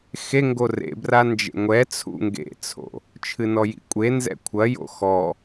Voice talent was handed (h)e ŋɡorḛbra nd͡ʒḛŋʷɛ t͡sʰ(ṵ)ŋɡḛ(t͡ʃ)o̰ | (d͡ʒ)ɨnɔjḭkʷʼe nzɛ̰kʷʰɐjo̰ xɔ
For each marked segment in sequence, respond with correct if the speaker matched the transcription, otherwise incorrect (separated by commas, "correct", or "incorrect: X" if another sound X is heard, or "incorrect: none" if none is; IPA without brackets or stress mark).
incorrect: x, correct, incorrect: t͡sʰ, incorrect: t͡ʃʰ